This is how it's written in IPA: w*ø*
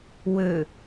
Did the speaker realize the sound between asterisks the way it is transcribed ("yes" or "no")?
yes